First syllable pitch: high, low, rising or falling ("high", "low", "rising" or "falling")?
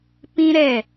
high